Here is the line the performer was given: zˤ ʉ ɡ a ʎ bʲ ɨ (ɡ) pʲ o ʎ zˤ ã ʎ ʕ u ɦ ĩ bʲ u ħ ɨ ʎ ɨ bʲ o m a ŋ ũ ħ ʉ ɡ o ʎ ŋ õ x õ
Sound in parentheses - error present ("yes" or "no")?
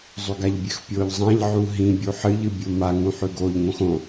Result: yes